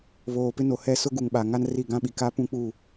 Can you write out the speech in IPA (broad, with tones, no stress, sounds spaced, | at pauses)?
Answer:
β oː˨ p ɪ˦ n o˨ h ɛ˦ s ʊ˦ ɡ u˨ ŋ ɓ a˨ ŋ a˦ n r i˦˨ ɡ ã˦ ɓ i˨ k a˦ p ũ˦ k͡p u˦˨